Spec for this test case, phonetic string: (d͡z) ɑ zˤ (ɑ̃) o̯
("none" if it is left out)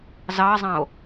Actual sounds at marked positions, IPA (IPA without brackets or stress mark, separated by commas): z, ɑ̃